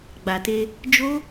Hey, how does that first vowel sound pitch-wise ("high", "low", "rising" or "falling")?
low